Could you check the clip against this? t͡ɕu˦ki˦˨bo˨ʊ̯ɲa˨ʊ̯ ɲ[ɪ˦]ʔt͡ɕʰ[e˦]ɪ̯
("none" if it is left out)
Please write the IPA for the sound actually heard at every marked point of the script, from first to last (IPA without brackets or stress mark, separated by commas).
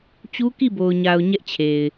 ɛ˦, e˨